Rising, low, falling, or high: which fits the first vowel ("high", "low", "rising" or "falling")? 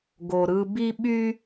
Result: low